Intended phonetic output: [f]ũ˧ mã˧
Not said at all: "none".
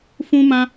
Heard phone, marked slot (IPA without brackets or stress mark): f